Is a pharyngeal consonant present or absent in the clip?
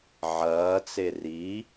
present